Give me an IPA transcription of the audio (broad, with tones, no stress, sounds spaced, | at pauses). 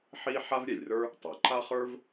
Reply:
ħ i˥ ħ a˥ v ɾʲ ɛ˩ lʲ r ə˞˥ | tˤ ə˞˩ ǃ a˥ χ ə˞˥ v